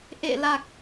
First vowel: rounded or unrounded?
unrounded